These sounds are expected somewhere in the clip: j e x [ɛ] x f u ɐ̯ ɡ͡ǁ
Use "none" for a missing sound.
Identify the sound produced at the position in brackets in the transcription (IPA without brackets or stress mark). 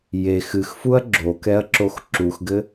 ɨ